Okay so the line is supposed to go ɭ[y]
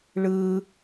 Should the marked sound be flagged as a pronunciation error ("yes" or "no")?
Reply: yes